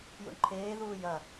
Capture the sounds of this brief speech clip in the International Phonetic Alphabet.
jṵɳǃʰeːðuː jɐ

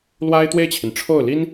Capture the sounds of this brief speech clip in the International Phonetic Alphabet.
lwa˥ɪ̯t̪we˥˩ɪ̯t͡ɕʰi˩n ʈ͡ʂʰo˥˩ʊ̯li˥n

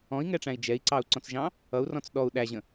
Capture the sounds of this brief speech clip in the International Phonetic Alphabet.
ɔ̃i̯ŋɛʈ͡ʂæ̃i̯ d͡ʒɛi̯ǀɑu̯ǀɔ̃t͡sʒɑ̃ | ʌu̯rɔ̃t͡s ɗɔu̯ ɗæʑə̃

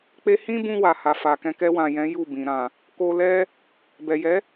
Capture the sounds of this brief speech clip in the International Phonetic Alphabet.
k͡pe˧hĩ˦bũ˧ wa˨ha˨fa˨kɛ̃˧ kɛ˧wã˨jɛ̃˨˦ ju˦˨bĩ˨ ɾã˨ | ko˧lɛ˦ | bɛ˨jɛ˨˦

